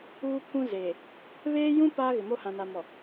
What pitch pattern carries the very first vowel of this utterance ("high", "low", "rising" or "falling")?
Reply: high